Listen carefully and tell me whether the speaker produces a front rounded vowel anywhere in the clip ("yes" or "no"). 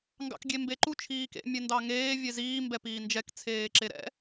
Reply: no